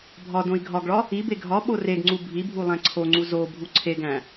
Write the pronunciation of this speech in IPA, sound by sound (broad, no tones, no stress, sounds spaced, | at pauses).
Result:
bʱ ɒ d õ i̯ ɡʱ ɒ ɡ ɭ ɒ | i b e ɡʱ ɒ ɓ o r e ɡ ŋ͡ǀ u bʱ i bʱ u lˠ æ̃ ǀʰ o ŋ͡ǀ u z o bʱ u ǀʰ e ɡ æ̃